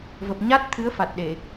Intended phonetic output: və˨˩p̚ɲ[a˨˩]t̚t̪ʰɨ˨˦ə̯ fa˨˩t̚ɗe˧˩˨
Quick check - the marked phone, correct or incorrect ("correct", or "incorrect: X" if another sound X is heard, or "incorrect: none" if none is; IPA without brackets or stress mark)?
incorrect: a˦˥